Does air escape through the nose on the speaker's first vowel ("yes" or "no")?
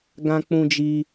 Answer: yes